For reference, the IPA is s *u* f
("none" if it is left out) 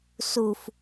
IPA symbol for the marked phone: u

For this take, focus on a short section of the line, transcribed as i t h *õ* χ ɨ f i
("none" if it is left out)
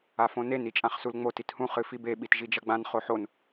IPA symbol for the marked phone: ũ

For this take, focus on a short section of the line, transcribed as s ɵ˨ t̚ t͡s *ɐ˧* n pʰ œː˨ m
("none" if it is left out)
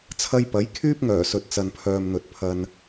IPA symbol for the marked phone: ɐ˨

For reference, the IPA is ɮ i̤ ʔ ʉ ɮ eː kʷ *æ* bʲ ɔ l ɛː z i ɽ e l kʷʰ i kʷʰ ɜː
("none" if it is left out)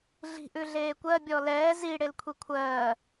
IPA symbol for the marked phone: ɜ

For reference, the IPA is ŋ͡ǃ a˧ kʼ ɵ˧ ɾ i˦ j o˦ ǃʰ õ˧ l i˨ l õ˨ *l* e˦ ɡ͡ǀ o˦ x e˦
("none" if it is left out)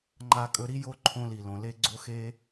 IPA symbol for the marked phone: l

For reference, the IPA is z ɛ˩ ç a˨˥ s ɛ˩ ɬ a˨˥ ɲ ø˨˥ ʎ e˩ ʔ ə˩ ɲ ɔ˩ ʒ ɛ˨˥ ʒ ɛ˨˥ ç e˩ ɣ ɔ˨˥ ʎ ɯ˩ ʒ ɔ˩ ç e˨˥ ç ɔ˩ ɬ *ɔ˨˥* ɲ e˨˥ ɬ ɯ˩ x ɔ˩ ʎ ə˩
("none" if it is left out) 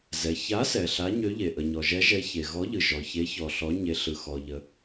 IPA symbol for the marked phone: ɔ˨˥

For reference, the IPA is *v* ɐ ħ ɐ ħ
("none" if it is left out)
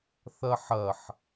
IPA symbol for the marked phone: θ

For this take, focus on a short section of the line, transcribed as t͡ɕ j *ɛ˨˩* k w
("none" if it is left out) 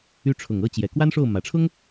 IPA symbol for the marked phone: ɛ˨˩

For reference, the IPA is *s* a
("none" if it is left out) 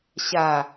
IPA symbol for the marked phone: ɕ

